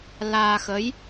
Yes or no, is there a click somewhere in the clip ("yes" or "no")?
no